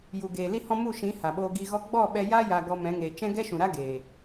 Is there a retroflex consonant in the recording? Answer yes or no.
no